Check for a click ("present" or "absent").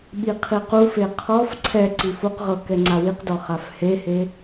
present